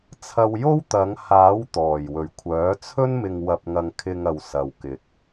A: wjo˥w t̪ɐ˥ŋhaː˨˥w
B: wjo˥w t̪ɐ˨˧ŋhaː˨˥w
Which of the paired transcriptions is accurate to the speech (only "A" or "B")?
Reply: B